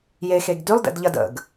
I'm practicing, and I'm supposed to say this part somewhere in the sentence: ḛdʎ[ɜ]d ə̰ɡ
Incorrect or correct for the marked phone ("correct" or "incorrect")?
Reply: correct